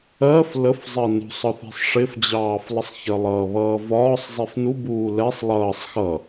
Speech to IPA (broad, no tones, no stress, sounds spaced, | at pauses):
ɜ f l ə f zˤ ɜ n ṳ sˤ ɒ θ i̤ sˤ ʂ ɪ f d͡ʑ ɑː f lˠ ə sˤ ç ɜ lˠ ʌː β ʌː v ɒː sˤ zˤ i f n u b uː l ɛ sˤ lˠ ʌː sˤ x ʌ